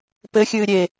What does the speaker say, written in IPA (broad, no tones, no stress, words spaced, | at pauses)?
pɘxʲɨː ɾʲe